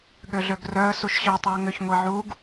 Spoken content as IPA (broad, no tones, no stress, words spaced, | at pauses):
ɠøɮøɡrœə̯ suʃɕœ tˤuə̯ŋʏç ŋʷiʕuɡ